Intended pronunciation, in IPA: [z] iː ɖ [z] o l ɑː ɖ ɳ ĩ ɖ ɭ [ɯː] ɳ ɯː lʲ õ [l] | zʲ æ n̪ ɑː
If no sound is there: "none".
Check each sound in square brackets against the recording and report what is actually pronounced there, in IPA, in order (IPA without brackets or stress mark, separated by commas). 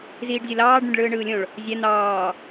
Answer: z, zʲ, ɯː, ɭ